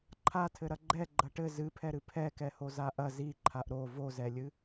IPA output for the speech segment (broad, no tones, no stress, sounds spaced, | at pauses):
ǃʰ a tʰ ɘ ɾ ɐ ɡ͡ǃ ɛ ɡ͡ǃ ɐ ʈ ɘ z ɨ pʰ ɛ ɾ ɨ pʰ ɛ k ɛ h o z a ʔ ɐ z i ǃʰ a ʔ ɾ o v o z ɛ lʲ ɨ